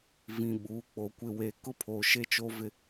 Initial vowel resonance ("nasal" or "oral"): nasal